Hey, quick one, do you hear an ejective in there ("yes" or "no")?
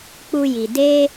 no